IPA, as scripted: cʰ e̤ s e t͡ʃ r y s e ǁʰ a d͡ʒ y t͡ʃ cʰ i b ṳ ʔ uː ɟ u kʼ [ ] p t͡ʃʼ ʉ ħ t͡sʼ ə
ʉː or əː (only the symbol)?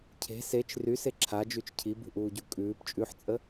ʉː